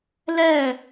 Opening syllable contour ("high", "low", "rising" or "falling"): falling